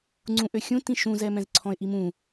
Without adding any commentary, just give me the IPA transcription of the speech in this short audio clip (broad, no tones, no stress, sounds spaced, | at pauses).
ŋ͡ǀ ũ ʔ ø xʲ ũ t ĩ ʃ ũ z ɛ m ɛ̃ z ǀʰ ɔ̃ ɪ̯ ʔ i m ũ